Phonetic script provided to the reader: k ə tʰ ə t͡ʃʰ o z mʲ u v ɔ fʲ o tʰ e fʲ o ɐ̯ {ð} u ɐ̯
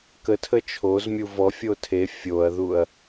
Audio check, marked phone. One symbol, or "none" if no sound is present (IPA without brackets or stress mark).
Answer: ð